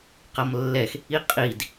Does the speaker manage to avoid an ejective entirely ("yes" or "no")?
no